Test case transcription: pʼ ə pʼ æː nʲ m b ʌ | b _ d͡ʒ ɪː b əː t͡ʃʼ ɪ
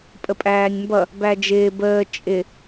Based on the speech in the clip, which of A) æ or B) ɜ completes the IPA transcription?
A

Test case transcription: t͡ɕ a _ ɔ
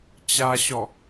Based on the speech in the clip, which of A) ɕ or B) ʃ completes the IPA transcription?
A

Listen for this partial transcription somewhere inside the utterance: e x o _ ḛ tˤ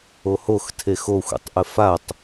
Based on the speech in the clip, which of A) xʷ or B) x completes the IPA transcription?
A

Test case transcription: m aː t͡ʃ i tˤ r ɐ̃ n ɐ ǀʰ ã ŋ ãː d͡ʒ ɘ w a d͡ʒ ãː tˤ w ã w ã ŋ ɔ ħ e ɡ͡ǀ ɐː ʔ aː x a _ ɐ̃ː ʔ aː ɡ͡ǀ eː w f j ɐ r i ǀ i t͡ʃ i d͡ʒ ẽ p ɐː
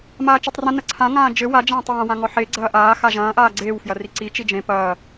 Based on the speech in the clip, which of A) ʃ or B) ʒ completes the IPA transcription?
B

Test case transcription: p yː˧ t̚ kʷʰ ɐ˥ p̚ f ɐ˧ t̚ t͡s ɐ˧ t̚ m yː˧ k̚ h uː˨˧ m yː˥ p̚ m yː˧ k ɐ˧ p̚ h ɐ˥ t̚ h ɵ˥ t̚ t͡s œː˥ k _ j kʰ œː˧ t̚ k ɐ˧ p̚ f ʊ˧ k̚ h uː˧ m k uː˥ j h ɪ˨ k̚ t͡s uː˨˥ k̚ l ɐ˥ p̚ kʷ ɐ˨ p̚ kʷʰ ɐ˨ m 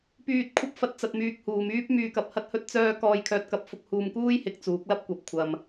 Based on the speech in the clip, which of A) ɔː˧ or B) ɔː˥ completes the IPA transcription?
A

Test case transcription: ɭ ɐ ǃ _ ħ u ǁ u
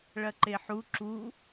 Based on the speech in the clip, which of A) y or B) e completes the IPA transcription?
B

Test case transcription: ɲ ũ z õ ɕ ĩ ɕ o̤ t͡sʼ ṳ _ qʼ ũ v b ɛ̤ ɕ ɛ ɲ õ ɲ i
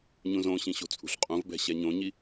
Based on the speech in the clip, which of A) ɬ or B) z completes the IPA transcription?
A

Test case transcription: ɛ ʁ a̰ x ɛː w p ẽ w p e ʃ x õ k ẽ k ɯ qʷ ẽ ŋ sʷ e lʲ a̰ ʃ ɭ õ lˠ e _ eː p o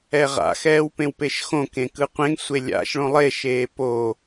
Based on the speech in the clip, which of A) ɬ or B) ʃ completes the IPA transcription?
B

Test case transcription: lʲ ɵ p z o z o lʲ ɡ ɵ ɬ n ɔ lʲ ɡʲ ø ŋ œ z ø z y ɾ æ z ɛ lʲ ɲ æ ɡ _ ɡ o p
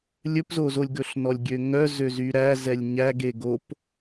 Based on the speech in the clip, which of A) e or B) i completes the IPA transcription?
A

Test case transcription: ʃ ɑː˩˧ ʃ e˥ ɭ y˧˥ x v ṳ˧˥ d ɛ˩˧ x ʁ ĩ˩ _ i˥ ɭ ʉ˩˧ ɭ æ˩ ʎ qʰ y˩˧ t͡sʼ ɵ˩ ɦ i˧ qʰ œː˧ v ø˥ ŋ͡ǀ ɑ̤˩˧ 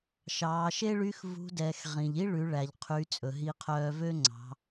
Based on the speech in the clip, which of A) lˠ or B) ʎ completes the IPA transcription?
B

